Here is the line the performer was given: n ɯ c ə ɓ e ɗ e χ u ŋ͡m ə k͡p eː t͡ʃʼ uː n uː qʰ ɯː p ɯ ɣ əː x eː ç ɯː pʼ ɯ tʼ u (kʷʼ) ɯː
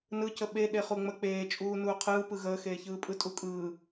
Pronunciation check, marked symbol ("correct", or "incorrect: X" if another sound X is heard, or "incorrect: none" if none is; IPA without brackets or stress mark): incorrect: kʼ